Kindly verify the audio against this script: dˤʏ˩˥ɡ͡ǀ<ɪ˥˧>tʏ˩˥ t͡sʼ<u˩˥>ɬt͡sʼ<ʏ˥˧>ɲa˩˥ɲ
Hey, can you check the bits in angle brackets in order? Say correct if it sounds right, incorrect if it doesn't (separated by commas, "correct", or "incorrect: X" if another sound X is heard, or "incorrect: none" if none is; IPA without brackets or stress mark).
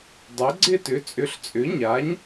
correct, incorrect: ʏ˩˥, incorrect: ʏ˩˥